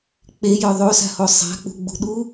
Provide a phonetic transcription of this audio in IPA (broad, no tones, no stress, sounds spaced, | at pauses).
k͡p e j œ ðˤ o s a̤ h o sˤ a̤ k͡p ṳ ɡ͡b ṳ ɗ u